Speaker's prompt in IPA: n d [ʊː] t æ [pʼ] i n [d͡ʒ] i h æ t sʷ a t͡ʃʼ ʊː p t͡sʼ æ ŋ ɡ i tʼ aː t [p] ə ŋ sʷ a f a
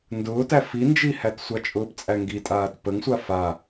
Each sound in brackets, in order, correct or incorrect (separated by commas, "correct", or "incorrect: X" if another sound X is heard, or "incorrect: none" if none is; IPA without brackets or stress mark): correct, incorrect: f, correct, correct